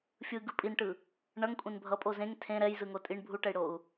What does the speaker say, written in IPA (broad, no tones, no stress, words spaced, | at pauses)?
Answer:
fʲɯɡɯ pʼinʈɯ | ɳʌŋkʷʼẽn bʱʌpʼo zẽŋ tʰẽ ɾɛjzɯŋo tʼiɳ bʱuʈɛi̯ɽou̯